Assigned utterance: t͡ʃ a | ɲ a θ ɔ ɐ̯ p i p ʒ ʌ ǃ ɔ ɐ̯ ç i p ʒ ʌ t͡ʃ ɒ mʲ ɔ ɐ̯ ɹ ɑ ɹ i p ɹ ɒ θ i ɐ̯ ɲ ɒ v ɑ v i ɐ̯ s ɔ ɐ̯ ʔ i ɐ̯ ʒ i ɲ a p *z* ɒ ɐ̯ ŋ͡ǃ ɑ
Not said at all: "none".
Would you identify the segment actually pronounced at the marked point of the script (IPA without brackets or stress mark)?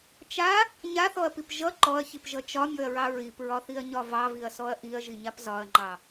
z